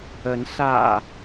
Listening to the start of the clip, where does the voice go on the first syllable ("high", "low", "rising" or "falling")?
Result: rising